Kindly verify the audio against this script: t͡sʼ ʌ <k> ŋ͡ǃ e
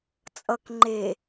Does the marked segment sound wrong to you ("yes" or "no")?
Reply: no